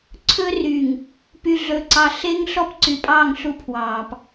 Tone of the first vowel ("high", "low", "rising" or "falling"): high